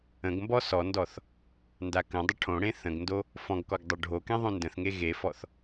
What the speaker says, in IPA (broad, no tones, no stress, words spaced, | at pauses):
ə̃ɡmbɔ sɔndɔθ | ndakə̃dˤə ʈʰõɽẽ θə̃ɡndo | fɔ̃ɡkɔɡ dˤoɖʱokẽ ðˤõndə̃θŋe ɣefɔθ